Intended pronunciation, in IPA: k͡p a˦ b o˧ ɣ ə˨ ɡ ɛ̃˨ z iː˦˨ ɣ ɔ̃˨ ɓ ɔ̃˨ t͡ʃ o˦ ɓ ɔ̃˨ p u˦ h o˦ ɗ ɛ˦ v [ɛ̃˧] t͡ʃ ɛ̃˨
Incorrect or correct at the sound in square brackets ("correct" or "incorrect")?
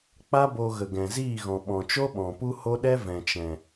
incorrect